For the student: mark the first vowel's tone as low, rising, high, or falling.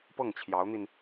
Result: falling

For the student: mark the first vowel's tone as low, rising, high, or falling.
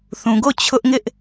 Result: low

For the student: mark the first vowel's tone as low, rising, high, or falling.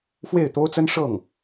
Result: falling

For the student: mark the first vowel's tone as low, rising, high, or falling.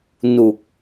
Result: low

